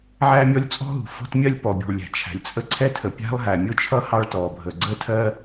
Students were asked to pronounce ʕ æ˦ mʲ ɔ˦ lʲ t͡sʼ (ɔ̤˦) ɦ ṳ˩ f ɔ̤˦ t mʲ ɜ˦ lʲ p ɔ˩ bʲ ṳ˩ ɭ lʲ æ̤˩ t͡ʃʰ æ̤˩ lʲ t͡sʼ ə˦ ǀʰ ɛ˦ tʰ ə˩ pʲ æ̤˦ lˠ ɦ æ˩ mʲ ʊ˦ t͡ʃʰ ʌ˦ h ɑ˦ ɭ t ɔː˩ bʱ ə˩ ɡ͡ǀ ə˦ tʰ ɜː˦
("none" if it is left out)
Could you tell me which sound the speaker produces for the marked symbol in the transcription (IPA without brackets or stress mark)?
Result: ɔ̤˦